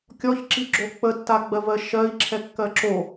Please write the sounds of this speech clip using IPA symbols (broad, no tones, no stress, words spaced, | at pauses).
kʲɔçǁiɡ͡ǁo k͡pətːaɡ͡bɜvɜ ʃɜi̯ǁʰɛkːɜ ǁo